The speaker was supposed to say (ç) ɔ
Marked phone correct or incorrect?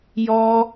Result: incorrect